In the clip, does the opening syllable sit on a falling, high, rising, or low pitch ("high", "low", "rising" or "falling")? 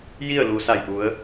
falling